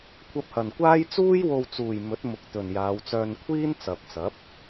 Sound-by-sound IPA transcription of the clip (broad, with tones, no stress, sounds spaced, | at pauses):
kʷʰ ɐ˧ p̚ h ɐ˨ n kʷ aː˥ j t͡s uː˥ j w o˧ w t͡s uː˨ j m ɵ˨˥ t̚ m ʊ˨ k̚ t̪ ɵ˨ n j aː˨˧ w t͡s œː˧ n kʷʰ iː˥ n t͡s ɐ˨ p̚ t͡s ɐ˨˥ p̚